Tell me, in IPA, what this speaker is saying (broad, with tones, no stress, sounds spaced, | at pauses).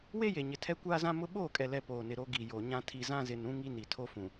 w e˦ j e˨ ɲ ɪ˨ tʰ ɛ˦ kʷ aː˦ z ã˦ m ʊ˦ ɓ oː˦˨ kʼ ɛ˨ l ɛ˨ p oː˨ n ɪ˨ ɾ o˦ ɡ i˨ j o˨ ɲ ã˦ tʰ i˨ z ã˦ z ɪ˨ n ũ˦ ŋ i˦ n i˨ tʰ o˦ f ũ˨